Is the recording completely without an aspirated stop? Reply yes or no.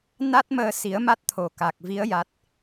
no